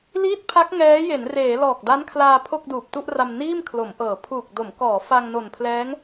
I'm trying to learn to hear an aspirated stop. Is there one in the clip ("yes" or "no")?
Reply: yes